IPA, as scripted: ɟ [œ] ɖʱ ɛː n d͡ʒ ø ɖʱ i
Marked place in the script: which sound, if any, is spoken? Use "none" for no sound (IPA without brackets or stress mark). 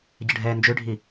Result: ə